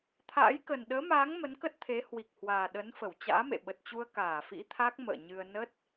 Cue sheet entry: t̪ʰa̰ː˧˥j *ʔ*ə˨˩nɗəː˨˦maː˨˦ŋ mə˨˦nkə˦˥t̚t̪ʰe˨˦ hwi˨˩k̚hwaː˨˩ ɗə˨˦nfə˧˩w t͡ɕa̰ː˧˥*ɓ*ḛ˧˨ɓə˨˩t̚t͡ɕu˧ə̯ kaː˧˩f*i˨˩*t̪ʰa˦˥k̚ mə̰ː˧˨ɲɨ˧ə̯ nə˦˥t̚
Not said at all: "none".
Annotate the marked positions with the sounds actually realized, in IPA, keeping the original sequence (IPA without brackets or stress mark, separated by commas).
k, m, ḭ˧˥